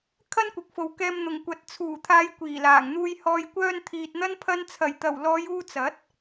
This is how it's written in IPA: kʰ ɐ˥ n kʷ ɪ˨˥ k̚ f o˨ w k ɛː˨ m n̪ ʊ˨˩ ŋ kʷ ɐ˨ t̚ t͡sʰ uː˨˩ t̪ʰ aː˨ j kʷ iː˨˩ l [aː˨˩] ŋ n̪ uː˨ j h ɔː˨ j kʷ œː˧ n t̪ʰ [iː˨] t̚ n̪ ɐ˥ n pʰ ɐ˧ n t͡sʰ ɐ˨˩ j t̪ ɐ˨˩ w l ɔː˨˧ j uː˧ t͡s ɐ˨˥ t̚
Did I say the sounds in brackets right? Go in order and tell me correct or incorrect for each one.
correct, correct

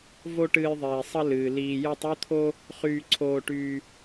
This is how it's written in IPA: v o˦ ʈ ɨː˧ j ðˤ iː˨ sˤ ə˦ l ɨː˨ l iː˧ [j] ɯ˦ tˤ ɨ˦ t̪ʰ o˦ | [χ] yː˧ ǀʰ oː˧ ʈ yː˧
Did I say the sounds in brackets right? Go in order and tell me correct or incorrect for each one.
correct, correct

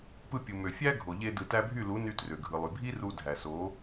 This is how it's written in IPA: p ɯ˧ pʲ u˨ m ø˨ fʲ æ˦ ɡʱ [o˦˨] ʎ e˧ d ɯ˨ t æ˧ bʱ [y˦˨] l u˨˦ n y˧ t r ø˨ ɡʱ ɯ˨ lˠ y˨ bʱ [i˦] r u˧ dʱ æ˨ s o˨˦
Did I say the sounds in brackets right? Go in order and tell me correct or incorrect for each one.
incorrect: o˨, correct, correct

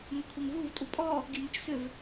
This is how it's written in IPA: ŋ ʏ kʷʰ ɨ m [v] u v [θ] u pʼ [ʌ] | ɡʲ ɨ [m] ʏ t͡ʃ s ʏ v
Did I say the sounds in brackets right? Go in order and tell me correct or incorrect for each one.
correct, incorrect: tʼ, incorrect: ɔ, correct

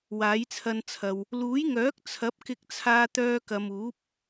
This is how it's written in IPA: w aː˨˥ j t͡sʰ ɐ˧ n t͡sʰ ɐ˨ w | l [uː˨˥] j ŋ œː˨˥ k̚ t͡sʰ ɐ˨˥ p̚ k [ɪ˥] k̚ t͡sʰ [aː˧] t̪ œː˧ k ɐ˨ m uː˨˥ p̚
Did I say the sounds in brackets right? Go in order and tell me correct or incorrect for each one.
correct, incorrect: ɪ˧, correct

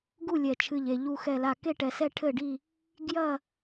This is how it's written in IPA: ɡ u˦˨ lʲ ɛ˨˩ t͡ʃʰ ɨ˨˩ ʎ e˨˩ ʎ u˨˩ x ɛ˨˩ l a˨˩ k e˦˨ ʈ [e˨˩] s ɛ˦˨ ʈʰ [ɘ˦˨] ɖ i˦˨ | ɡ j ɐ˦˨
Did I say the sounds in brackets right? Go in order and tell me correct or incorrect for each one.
incorrect: ɛ˨˩, correct

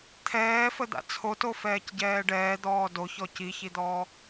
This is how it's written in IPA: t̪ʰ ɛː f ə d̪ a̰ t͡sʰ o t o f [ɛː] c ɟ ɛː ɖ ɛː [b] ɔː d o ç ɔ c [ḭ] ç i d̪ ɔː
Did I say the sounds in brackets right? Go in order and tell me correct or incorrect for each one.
correct, incorrect: d̪, incorrect: i

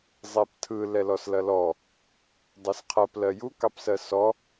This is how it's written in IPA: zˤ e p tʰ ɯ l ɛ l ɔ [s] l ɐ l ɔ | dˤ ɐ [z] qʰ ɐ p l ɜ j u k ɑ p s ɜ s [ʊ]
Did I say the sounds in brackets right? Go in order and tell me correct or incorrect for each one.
correct, incorrect: s, incorrect: ɔ

